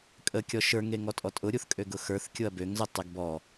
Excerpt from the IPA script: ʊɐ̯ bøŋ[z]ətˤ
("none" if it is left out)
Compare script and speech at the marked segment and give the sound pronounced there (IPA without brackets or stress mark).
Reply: z